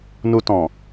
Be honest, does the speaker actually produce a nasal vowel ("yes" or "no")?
yes